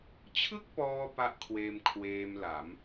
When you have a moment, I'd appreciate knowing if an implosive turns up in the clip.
no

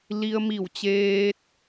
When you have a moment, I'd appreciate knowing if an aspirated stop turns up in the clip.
no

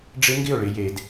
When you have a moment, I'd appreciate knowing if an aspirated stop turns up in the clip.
no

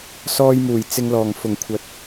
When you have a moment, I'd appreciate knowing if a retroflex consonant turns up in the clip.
no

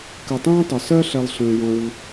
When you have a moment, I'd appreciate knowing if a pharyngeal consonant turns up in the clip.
no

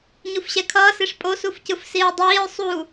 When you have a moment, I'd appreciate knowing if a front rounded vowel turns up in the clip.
no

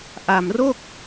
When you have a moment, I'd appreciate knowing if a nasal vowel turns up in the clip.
no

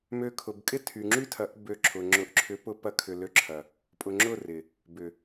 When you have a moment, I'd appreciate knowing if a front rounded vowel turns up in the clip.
yes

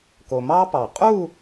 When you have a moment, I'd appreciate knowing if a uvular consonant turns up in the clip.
yes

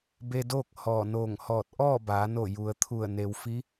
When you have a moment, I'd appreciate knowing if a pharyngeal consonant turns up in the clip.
no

